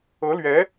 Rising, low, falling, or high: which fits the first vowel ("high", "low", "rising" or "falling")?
rising